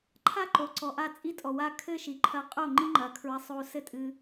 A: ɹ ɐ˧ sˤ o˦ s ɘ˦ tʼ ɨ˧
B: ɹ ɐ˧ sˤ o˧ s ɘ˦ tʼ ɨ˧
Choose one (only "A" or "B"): B